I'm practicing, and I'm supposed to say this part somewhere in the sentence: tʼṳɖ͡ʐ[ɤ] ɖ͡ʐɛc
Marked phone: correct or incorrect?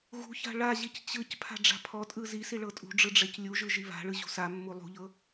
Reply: incorrect